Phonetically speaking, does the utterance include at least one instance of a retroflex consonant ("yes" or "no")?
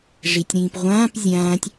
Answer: yes